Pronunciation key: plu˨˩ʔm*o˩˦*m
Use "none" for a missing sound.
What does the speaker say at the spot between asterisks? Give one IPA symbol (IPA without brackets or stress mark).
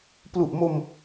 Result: o˧